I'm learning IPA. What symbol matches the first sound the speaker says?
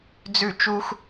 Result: d͡z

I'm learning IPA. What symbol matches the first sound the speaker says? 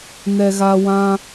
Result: n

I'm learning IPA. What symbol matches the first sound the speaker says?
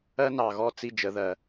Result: ɜ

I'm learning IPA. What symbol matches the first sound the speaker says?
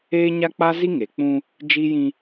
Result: eː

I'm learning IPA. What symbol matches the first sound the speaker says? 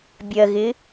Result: bʲ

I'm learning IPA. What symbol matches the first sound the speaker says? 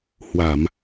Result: h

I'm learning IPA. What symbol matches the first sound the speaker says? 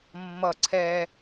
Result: mː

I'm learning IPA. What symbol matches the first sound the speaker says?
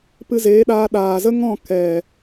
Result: p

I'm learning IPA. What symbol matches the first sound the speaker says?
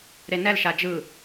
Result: ɾ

